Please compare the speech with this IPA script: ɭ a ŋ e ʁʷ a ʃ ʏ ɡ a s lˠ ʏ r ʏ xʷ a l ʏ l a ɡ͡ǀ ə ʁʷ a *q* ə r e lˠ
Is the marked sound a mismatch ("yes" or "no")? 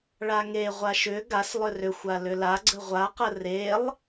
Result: no